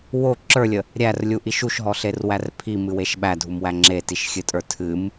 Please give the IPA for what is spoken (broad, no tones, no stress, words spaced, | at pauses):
wo ǁə˞lʲə | ɾʲærlʲuʔiʃ uʃɦɔɬerwær pʰimɨweʃ ɓædʱumwæ ŋ͡ǁetiʃxʲɨtʼə˞ tʰɨm